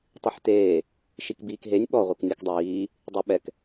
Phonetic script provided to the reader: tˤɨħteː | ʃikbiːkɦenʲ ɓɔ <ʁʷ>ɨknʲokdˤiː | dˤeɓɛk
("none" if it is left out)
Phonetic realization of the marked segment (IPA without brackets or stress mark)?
ʁʷ